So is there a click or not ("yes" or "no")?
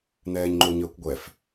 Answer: yes